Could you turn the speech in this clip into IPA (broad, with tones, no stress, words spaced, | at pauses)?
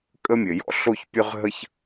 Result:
kʼə˥mʲɘ˩jɔ̰˥ ɬo˥çpʲø˥ʁɦə˥ç